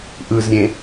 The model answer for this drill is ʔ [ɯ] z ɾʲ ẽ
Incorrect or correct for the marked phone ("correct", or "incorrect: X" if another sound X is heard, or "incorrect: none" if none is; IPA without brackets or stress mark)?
correct